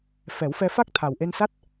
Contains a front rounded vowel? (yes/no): no